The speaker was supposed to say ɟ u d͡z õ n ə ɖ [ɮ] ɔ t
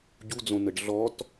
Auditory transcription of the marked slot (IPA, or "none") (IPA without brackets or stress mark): ɮ